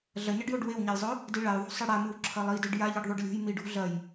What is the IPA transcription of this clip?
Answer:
ɮ ɐ ɲ ɐ ɖ j o ɖ w e w ɲ a j zˤ ɵ | d i ɭ a j ðˤ ṳ sˤ ɨ ɽ a m ɨ w ǁʰ ɐ lˠ i d e ɖ j a ʎ i ɖ ðˤ u ɖ lʲ o̤ j m i ɖ ṳ ɮ ɐ j

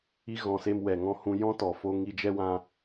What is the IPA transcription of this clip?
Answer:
i˧ ɣ ɔ̃˨ s e˧ m w ɛ˨ ŋ ɔ̃˧ h ũ˧ j ɔ̃˦ t ɔ˨ f o˧ ŋ i˧ d͡ʒ ɛ˦ w ã˦

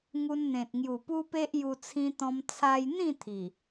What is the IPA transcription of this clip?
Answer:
ŋ u˧ n n̪ ẽ˨ t̚ ŋ j u˨˩ p u˦ p e˦ ʔ j u˧ t͡sʰ ĩ˧ t̪ ɔ̃˧ m t͡sʰ a˧ j n̪ ĩ˥˧ t̪ʰ i˨˩

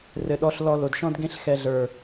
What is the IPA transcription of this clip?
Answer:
r ɘ˨ ɗ ɔ˧ ɬ l ɔ˧ l o˨ d ʃ ɔ̃˦ d ɡ ẽ˦ ɬ x ɛ˧ ɮ ə˞˨

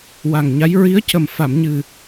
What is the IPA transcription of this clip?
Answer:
w a˨˩ ŋ ɲ a˧˥ j ɹ i˧˥ ə̯ c ə˨˩ m f a˨˩˨ m ɲ ɨ˨˩

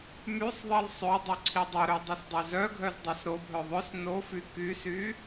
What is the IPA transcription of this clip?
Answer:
m y sˤ ðˤ i l sˤ ø dˤ y ǀʰ i dˤ o ɾ ø dˤ i s dˤ ø z œ ɡʱ œ z dˤ o s ɾ o bʱ œ ðˤ œ s n o f y k y s y

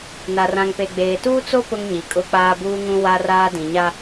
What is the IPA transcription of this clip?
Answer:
n a˨ r ã˨ ŋ p e˨ ɡ͡b eː˨ t uː˦ t͡s o˦ p ʊ˦ ŋ ɲ i˨ kʼ ʊ˦ k͡p aː˦ b uː˦ ŋ ũ˦ w a˦ r aː˦ d ĩ˨ ɲ a˦

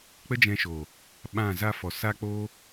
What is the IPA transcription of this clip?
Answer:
k͡p ə˦ d͡ʒ ɛ̃˧ ʃ oː˨ | ɓ ã˦˨ z a˦ f ɔ˨ s a˦ k͡p oː˦

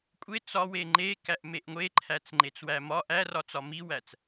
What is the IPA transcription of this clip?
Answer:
kʷʼ e t͡s ɒ w e ŋ͡ǃ e k æ ʔ m e ʔ ŋʷ e ǃʰ æ t͡s ŋ͡ǃ e t͡s w æ m ɒ ʔ æ r ɒ t͡s ɒ m i w æ t͡s

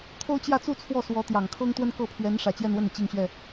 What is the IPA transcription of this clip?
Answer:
t̪ʰ o˥ ʊ̯ t͡ɕ j ä˥˧ t͡s u˥˧ t͡sʰ w ɔ˥˩ s w ɔ˧˥ t̪ j ɑ˨˩ ŋ kʰ ɤ˥ ŋ t̪ w ə˥ n k ɤ˥˩ pʰ ɥ ɛ˧˥ n ʂ ä˨˩ t͡ɕ j ɛ˥˧ n w ə˥˩ n i˩ t͡ɕ i˥˧ ŋ ɕ ɥ ɛ˥˩

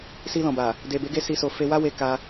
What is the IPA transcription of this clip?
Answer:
s i˧ l ɔ̃˨ b a˨ | d e˨ b e˨˦ ɡ e˧ s i˧ s o˧ f e˧ w a˦ w e˧ k a˦

